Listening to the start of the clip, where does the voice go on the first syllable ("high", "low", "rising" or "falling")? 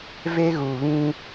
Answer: high